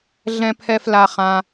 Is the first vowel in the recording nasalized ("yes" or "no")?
yes